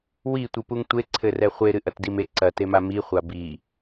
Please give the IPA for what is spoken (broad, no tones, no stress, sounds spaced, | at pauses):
w i tʷ i p u ŋ tʷ e ǀʰ ɘ r ɛ χʷ e ɾ ɨ ʔ ɐ t d i m e ǀ ɐ t e m a m i χʷ a b i